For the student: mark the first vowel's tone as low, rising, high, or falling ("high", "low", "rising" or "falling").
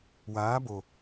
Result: rising